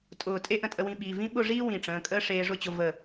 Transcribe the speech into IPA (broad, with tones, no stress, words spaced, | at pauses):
tʼʊː˧˩ tʼe˥ʔə̃˧tʼə˧wĩ˧ ɓi˩˧˩vĩ˥ ɓʊ˥˨ʐiː˥ wĩ˧˩ʈ͡ʂə̃ː˩˧˩kʼəː˥ ʂeː˧ʐʊ˥˨t͡ɕʊ˧ və˧˩